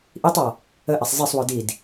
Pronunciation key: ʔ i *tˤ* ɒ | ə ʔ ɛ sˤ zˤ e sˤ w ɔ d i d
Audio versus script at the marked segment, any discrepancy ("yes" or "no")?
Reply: no